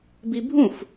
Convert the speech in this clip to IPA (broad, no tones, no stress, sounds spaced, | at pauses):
b i bʱ ũ f